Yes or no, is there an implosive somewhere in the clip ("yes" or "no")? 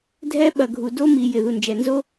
yes